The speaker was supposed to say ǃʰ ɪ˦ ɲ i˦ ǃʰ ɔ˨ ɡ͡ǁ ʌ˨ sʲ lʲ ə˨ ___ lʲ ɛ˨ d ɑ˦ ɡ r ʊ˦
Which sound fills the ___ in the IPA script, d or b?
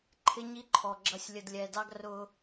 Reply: d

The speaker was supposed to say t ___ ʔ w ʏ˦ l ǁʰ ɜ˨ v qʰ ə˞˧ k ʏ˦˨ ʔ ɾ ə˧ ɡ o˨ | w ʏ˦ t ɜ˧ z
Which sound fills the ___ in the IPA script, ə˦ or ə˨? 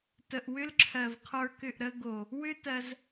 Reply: ə˨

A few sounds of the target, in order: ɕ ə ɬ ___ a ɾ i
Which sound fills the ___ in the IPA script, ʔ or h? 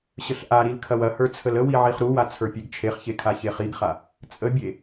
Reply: ʔ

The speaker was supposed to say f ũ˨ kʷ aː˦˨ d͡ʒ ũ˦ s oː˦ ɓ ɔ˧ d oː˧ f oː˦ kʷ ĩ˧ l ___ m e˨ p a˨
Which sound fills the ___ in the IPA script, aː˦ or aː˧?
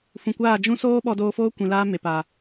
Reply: aː˦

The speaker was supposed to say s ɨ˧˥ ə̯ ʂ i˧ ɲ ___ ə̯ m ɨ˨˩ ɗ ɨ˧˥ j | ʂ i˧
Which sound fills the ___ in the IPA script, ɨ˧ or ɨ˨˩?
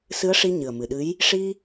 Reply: ɨ˨˩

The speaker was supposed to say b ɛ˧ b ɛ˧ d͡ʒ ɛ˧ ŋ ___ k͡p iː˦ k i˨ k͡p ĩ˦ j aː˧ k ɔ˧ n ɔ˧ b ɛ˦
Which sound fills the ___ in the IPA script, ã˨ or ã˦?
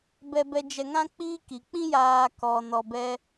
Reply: ã˦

